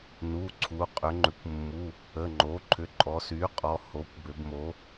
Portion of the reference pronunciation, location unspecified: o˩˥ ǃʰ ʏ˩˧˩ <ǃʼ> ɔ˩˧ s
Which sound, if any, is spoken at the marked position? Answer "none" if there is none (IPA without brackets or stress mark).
ǃʼ